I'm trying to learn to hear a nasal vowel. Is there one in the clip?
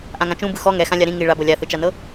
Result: yes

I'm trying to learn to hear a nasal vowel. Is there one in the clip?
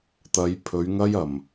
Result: no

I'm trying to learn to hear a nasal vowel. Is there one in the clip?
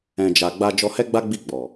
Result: yes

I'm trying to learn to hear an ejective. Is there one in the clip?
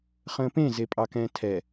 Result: yes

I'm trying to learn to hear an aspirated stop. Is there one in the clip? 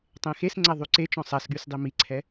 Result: yes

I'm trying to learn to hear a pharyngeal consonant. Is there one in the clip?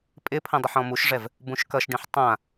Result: yes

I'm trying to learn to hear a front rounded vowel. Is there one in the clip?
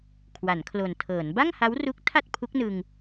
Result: no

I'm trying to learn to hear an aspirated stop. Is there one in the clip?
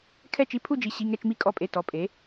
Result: yes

